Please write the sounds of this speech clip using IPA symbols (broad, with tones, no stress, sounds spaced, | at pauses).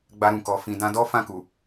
ɡ͡b a˧ ɾ ũ˨ k ɔ˨ f ĩ˨ d ã˧ d ɔ˦ f ã˦˨ k u˨